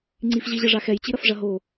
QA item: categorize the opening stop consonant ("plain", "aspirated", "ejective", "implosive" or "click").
click